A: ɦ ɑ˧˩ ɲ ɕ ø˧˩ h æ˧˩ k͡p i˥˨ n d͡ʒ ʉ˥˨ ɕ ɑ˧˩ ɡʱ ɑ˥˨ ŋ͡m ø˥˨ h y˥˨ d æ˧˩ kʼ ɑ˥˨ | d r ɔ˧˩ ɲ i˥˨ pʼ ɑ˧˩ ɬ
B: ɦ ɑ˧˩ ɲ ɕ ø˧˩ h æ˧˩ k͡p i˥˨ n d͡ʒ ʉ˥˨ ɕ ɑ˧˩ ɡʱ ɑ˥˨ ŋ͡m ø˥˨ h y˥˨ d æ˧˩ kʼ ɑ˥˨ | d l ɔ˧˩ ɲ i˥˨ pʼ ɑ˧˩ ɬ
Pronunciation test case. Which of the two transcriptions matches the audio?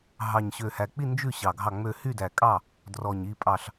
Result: A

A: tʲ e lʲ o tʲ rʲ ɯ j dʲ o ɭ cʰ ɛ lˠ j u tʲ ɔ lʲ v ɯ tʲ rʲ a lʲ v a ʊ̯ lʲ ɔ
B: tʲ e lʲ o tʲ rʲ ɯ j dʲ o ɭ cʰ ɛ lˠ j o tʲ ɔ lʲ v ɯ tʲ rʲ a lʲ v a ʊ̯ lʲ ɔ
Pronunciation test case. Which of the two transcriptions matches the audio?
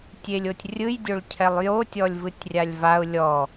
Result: B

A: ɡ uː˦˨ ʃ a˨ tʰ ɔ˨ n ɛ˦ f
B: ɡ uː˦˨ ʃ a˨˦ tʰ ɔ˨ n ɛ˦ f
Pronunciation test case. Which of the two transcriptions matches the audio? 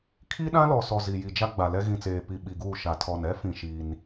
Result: A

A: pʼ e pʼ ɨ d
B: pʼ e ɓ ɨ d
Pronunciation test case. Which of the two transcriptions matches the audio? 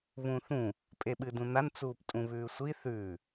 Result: B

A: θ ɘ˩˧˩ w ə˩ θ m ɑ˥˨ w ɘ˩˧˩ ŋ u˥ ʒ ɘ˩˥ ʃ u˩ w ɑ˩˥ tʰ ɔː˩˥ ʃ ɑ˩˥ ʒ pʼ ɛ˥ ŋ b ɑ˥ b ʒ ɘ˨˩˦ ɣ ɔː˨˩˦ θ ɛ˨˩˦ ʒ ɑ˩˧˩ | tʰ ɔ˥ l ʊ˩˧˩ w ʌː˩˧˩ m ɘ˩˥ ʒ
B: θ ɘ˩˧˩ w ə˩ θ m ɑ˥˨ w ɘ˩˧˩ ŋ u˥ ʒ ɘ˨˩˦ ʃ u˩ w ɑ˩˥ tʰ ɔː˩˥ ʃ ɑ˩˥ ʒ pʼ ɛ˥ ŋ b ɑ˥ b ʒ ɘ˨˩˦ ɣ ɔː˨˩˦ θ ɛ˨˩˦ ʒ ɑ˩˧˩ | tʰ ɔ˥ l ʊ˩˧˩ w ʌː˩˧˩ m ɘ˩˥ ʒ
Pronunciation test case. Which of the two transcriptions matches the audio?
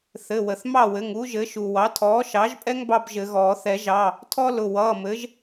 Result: A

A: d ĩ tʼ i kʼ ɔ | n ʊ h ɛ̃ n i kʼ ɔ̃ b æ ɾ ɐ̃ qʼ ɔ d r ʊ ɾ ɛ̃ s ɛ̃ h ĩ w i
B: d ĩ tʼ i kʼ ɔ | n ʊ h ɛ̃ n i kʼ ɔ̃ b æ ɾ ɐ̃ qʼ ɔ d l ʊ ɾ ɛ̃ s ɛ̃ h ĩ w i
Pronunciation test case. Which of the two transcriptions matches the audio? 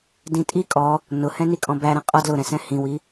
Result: B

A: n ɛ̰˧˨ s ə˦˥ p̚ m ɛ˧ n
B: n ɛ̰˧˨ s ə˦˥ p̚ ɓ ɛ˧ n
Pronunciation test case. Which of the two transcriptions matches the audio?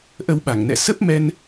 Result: A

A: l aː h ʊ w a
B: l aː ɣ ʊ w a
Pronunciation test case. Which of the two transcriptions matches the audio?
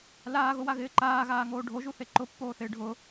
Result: B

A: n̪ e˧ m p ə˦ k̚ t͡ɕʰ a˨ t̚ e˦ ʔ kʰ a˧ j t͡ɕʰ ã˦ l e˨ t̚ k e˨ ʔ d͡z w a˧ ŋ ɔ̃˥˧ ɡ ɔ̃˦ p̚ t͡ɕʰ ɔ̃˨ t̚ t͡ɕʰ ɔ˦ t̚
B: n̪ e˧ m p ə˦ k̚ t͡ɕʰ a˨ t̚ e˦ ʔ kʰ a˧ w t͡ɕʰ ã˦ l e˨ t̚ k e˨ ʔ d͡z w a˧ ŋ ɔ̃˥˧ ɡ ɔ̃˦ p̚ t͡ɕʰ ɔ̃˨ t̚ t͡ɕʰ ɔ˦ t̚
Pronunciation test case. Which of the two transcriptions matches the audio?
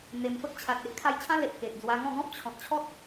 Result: A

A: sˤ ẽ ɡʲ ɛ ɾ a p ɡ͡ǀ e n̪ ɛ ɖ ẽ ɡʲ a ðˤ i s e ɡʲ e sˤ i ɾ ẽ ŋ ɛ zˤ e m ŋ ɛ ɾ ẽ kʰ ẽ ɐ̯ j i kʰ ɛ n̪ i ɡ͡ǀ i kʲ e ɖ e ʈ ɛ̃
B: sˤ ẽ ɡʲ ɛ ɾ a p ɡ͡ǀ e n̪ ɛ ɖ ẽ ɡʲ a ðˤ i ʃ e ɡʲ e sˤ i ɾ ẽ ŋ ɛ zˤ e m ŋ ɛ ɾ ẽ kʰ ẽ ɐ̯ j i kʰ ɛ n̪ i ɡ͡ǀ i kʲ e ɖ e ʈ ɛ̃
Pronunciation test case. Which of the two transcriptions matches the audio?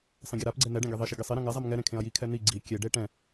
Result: B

